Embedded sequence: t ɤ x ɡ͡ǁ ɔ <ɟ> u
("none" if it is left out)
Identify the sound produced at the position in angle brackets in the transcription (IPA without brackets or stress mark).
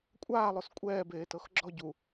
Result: ɟ